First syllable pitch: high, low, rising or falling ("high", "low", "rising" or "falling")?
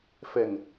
low